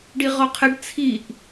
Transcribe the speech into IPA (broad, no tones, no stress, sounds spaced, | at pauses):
ɖ i ʁ ɔ qʰ ə ɖ t͡sʰ i ʔ